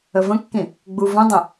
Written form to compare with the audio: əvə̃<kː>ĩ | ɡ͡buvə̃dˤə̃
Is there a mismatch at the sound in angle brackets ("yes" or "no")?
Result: no